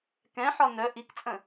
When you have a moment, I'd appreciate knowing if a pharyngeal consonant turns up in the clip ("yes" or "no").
yes